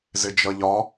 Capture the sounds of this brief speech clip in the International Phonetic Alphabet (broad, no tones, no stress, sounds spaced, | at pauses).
z ɪ d͡ʒ ʌ ʎ ɒ